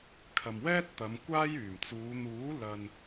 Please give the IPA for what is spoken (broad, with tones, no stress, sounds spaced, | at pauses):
kʰ ɐ˨ m w ɛː˥ t̚ t̪ ɐ˨˧ m kʷ aː˥ j yː˨˩ m t͡s uː˨˧ n̪ uː˨˥ l ɐ˨ n